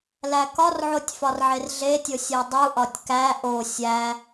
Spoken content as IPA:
l æ k ɒ r ʕ o tʲ f ɒ r ʕ e r ɮ e tʲ o sʲ e dˤ u ʔ ɒ tʲ k æ ʔ o sʲ æ

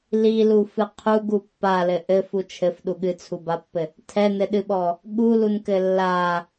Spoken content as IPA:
l i l u f ɨ qʰ u ɡ u pː a l ɘ ʔ ɘ f u t͡ʃʰ ɘ f ɗ u ɠ ɨ t͡sʰ u b a pː ɘ | tʰ ɛ n ɘ ɗ ɨ ɓ ɔ | ɠ u l u n k ɘ lː a

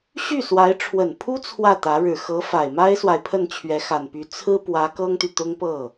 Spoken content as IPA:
ɕ y˥˩ s w a˧˥ ɪ̯ ʈ͡ʂʰ w ə˨˩ n pʰ u˥ t͡sʰ w ä˥˩ t̪ ä˧˥ ɻ ɻ̩˨˩ x ɤ˧˥ f a˨˩ ɪ̯ m a˥ ɪ̯ s w a˨ ɪ̯ pʰ ə˥˩ n t͡ɕʰ ɥ ɛ˧˥ x a˨˩ n p y˧˥ t͡sʰ ɹ̩˥ p w ä˧˥ k ɤ˥ ŋ t̪ y˨ t̪ ʊ˥ ŋ p ɤ˥˩

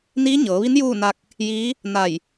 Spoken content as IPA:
n iː˧˥ ɲ ɤː˩˧ ʋ i˧˥ n j uː˥˨ n a˧ k̚ | j iː˧˥ | n a˧˩ j

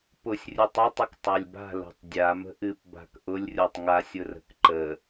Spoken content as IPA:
p ʊ sʲ rʲ ɯ tˤ ə tˤ ə k tˤ a lʲ b a̤ l o̤ tˤ dʲ a m ə̤ ʔ ɨ p b a̤ k ʔ ʊ lʲ rʲ o tˤ ŋ a sʲ ʊ r ə̤ k ǃ ə

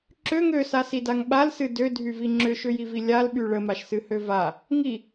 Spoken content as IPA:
ǁ ø ŋ ø s a s i d a ŋ ɓ a l s ɨ d ø dʱ y v i ŋ͡ǁ ʏ ʃ ʏ j i v i lʲ a l ɓ y ɭ ə m a ʃ s ɨ h ø v a | ŋ i

